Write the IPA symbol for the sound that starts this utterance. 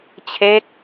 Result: t͡ɕʰ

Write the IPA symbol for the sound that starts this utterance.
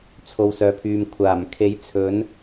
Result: t͡sʰ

